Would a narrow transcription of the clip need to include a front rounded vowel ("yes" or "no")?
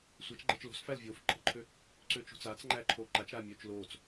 yes